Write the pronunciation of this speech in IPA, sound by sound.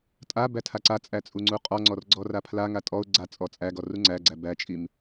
tʼ a b æ tʰ a ǀ a t͡sʼ æ t͡sʼ u ŋ͡ǀ u qʼ ɔ ŋ͡ǀ ɔ r ɡ͡ǀ ɔ r a pʰ l a ŋ a tʼ ɔ ʊ̯ ɡ͡ǀ a t͡sʼ ɔ t͡sʼ æ ɡ ɔ r u ŋ͡ǀ æ ɡ͡ǀ æ b æ t͡ʃʼ i m

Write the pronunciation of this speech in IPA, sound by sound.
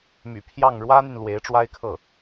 m y̰˨˩ pʰ j ɑ˥˩ ŋ ɻ w ä˥ n̪ y˨ n l w e˧˥ ɪ̯ ʈ͡ʂ w a˥ ɪ̯ kʰ ɤ˥˩

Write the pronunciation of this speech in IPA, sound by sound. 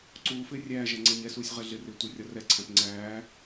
ǀ uː f ɪː rʲ æː ʒ æ ŋ͡ǀ æ ɲ ɛ s uː sʲ ʁ ɛ ɮ ɪ r ɪː tʷ ɪː rʲ ɒ r ɛ ǀʰ æ̃ p ŋ͡ǀ æː

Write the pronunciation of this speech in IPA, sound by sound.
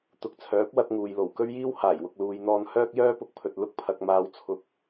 t̪ ʊ˨ k̚ t͡sʰ œː˨˥ p̚ w ɐ˧ t̚ ŋ uː˨ j l o˨˩ w k ɵ˥ ɥ j iː˥ w h aː˨˩ j w ʊ˨ k̚ l uː˨ j n̪ ɔː˧ n h œː˥ k̚ j œː˥ p ʊ˧ k̚ pʰ ɵ˨ t̚ l ʊ˧ k̚ pʰ ɐ˨ k̚ m aː˨˧ w t͡sʰ ʊ˧ k̚

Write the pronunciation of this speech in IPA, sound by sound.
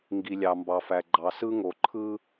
ŋ ɡ i˨ lʲ ɑ˨ m b ɑ˨ f æ˨ ɡ͡ǃ ɑ˨ s ɯ˦ ŋ o˨ ǃʰ ɯ˦

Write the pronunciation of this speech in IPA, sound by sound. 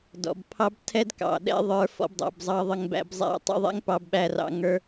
d ɔ̰˨ b pʰ ɑ˦ b tʰ ɛ˦ d k ɑ̰˨ ɗ ɛ̰˦ ðˤ ə˞˦ f ɔ̰˦ b dˤ æ̰˧ b zˤ ɑ˦ ðˤ ə˧ ŋ b æ̰˧ b zˤ æ̰˧ tˤ ɛ̰˦ ðˤ ɛ̰˦ ŋ p ɑ˧ b ɓ æ˧ r ɑ̰˧ ŋ ə˞˧

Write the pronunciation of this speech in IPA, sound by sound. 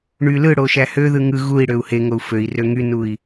ɳ y l ɯ ɽ o ʃ æ h ø ð ɯ ŋ ɯ ɣ u i̯ ɽ ø u̯ h e ŋ o u̯ f ø i̯ r ø ŋ y n u i̯

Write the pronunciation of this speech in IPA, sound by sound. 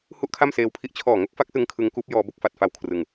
h u˥˩ ʔ kʰ a˥˩ m s eː˧ w pʰ i˦˥ ʔ t͡ɕʰ ɔː˨˩ ŋ o˦˥ k̚ f a˦˥ k̚ s ɯ˧ ŋ kʰ ɯ˦˥ ŋ k uː˦˥ p̚ j ɔː˧ b o˥˩ k̚ f a˨˩ t̚ f a˧ w kʰ r ɯ˧ ŋ

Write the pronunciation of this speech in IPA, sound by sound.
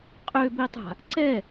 qʼ ø b i tˤ a̤ | ǀ ɛ

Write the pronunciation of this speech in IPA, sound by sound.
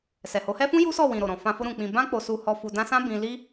s ɛ˨ h o˨˦ h ɛ˦ f ũ˦ j u˦ s ɔ˦˨ w ĩ˨ ɾ o˨ ɾ ɔ̃˨ f ã˧ f o˦ ɾ ũ˧ k͡p ĩ˧ b ã˦ k͡p o˧ s u˧ h ɔ˧ f u˧ d ã˦ s ã˦ b ĩ˧ l i˦

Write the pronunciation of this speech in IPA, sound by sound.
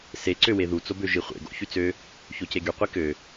s e ǀ ø w e ð u t͡s o b ø ʒ i χʷ ḛ ɡ o̰ ç y t͡s ø | ç o c e ɡ y qʷ i k ø

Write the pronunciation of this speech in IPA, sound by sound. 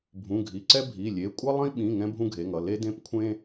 bʱ ũ˩˧˩ ɡʱ i˩˧˩ ǀ ɛ˦ bʱ i˩˧˩ lʲ e˩˧˩ kʷʼ ʌ˦ lˠ ĩ˦ ɓ ĩ˩˧˩ ŋ ɛ̃˦ bʱ ũ˦ ɡʱ e˩˧˩ ŋ ʌ˩˧˩ l e˦ d ẽ˦ p kʷʰ ẽ˦

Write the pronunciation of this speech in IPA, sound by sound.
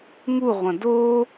ŋ u ʁʷ ɐ̃ d o

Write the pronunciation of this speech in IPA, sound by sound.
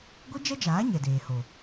ɡʷ i˦ d͡ʒ ɛ˦ d͡ʒ aː˨˦ ɲ ɛ˨ d eː˨ h o˨

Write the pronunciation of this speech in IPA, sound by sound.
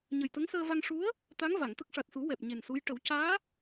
ɲ ə˨˩ j t̪ ə˧˥ ŋ s əː˧ v a˧ ŋ ʂ u˧˥ ə̯ | t̪ a˧˥ ŋ v a˨˩˨ ŋ t̪ ə˦˥ k̚ ʂ a˨˩ t̚ s u˨˩˦ w ɛ˨˩ p̚ ɲ e˨˩ n s u˧˥ j ʈ ə˨˩˦ w c aː˧˥

